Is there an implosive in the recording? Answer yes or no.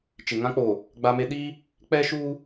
yes